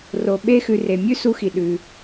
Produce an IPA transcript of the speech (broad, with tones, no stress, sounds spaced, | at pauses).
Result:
r o˨ ɓ e˦ x ʉ˧ r e˨ mʲ ʉ˦ s u˧ x i˨ ɗ ʉ˧